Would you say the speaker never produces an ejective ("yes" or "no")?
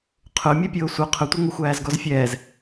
yes